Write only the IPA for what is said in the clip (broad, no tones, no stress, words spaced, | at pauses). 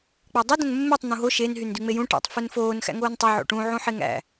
k͡pɑdˤi dõnmːetˤ n̪ũɦo ʃen ɦyndyŋ͡mejũ ʈæ̰tˤ funfoːn xæ̰ŋoːntˤo ʕo̰ʈũ ʕũħeŋæ̰